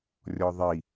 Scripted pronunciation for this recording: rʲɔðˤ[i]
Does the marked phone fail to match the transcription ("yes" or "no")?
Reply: no